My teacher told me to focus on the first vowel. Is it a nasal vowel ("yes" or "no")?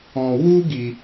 yes